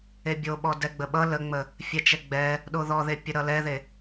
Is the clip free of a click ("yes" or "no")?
yes